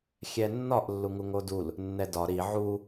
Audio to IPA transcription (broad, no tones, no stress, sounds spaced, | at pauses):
xʲ ɛ nː ɒ ʔ lː u ŋ u ŋ o d u l | nː ɛ d ɒ ɾ i ʕ u